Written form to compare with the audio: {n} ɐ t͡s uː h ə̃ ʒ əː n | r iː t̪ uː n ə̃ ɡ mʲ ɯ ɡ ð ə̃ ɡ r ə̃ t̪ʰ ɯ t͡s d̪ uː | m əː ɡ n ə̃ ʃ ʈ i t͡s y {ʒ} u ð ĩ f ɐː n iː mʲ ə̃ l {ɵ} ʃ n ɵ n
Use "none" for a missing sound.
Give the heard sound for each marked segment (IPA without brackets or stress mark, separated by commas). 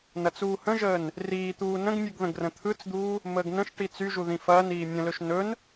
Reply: n, ʒ, ɵ